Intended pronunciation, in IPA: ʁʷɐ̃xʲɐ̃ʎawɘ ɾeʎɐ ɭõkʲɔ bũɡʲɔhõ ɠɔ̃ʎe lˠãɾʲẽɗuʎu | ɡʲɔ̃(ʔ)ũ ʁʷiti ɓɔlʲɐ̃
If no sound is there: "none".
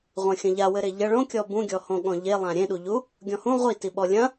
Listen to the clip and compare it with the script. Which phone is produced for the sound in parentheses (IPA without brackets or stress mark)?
h